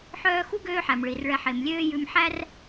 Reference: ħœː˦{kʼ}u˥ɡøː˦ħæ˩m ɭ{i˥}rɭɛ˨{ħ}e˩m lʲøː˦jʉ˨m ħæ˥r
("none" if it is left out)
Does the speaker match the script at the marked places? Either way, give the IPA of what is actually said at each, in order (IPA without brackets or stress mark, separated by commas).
x, i˩, ħ